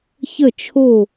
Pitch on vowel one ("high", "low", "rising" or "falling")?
falling